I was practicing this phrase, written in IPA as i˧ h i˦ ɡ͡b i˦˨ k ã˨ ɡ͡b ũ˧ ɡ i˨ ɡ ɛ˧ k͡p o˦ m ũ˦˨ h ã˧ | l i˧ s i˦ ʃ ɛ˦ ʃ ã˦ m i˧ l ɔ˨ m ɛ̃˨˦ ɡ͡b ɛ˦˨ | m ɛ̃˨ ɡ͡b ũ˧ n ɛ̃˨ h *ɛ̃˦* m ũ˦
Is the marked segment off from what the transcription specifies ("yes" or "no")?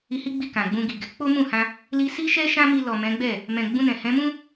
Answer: yes